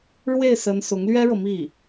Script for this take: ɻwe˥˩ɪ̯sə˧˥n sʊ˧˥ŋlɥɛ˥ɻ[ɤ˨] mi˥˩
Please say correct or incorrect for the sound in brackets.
correct